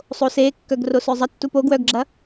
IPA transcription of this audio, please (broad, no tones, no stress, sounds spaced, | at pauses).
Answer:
sˤ o s e kː œ ɡ r o s œ zˤ ʌ tː u p o ɡ w œ ɡ ɡ͡ǁ ɐ